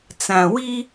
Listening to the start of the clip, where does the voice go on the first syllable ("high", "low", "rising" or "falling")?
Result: low